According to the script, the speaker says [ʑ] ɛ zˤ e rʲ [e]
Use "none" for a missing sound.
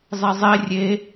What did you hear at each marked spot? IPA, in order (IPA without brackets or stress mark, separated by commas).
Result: zˤ, e